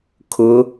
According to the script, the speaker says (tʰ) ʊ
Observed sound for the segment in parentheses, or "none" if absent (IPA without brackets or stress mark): kʰ